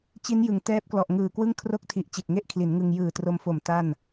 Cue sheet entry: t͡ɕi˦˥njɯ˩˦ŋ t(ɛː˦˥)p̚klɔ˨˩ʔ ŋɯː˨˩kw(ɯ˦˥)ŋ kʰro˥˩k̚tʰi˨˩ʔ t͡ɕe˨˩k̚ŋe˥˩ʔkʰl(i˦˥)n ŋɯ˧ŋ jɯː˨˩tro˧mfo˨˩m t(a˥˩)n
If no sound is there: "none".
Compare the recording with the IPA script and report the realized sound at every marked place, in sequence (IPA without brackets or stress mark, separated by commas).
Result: ɛː˦˥, ɯ˥˩, i˩˦, a˥˩